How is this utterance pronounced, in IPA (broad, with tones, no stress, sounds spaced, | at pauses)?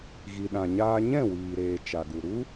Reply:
ɣ i˨ ɗ ã˨ ɲ aː˧ ɲ ɛ̃˦˨ w iː˨ ɾ eː˨ t͡ʃ a˨ ɡ u˨ ɾ u˦